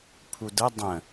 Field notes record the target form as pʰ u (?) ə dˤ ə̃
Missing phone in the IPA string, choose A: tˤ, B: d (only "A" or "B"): B